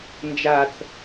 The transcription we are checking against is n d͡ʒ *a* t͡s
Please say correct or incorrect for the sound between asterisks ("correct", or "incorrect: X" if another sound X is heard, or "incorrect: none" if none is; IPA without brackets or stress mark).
correct